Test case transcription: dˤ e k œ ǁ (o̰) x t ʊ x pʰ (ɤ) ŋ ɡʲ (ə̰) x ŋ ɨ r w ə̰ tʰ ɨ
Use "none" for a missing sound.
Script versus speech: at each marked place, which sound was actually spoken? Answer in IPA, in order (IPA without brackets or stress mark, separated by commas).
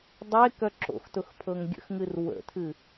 o̰, ɤ, ə̰